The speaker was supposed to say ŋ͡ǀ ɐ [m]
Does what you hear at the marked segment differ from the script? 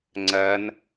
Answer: yes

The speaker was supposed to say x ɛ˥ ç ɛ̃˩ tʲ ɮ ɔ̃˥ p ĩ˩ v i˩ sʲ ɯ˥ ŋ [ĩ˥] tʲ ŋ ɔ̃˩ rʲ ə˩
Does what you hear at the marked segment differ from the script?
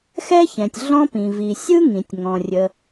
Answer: yes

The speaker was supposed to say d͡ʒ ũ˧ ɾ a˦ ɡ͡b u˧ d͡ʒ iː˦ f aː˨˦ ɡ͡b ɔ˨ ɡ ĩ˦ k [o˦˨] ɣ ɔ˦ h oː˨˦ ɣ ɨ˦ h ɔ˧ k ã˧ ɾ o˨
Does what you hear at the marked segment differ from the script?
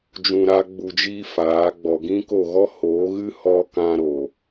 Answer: no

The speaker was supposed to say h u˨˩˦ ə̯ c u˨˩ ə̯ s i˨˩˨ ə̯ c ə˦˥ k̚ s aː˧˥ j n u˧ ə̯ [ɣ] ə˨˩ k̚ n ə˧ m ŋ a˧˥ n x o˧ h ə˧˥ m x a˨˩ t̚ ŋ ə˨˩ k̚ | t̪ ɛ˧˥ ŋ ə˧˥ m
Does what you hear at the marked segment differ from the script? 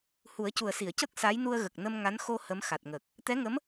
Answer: no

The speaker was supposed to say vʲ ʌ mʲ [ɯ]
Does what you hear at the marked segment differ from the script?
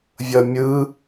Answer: no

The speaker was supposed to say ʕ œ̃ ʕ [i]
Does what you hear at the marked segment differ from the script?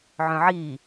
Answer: no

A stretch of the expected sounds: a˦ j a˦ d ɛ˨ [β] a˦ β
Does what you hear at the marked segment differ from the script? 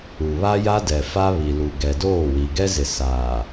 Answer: yes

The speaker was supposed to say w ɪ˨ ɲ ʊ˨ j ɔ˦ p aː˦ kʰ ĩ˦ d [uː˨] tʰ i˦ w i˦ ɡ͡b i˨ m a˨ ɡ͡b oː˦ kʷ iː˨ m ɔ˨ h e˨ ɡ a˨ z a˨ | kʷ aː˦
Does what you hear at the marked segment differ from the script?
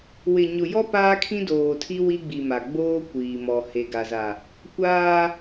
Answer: yes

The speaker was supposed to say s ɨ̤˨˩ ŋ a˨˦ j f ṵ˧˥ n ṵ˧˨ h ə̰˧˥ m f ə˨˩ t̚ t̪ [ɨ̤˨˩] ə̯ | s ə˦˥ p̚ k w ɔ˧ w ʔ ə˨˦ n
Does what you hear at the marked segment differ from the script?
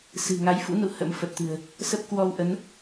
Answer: no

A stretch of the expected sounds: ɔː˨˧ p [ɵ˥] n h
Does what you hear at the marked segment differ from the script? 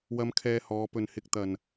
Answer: yes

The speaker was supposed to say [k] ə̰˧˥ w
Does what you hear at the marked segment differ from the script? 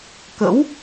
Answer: no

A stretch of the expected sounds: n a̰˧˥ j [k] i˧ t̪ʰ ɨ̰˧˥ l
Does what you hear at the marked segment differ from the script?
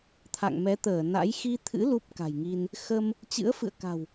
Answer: yes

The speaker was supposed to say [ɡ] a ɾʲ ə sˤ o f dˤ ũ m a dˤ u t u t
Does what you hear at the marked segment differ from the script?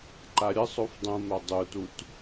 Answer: yes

